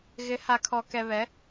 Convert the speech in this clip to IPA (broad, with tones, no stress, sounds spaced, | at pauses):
ɣ ɪ˨˦ h a˨ kʰ ɔ˨ k ɛ˨ β ɛ˨˦